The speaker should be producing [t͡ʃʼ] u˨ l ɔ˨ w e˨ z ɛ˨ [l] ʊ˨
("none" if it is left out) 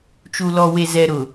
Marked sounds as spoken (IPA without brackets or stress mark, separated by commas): t͡ʃ, ɾ